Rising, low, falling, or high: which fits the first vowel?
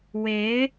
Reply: rising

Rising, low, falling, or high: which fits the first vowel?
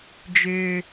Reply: high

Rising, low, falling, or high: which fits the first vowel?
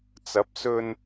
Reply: rising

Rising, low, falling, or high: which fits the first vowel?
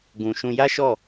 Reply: low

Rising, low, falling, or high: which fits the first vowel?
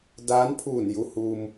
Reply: rising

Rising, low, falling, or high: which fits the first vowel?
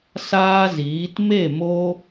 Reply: high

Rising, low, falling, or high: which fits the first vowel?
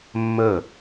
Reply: falling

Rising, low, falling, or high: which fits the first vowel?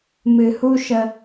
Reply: low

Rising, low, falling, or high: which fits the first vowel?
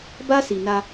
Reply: high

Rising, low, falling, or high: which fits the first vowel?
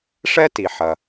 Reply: high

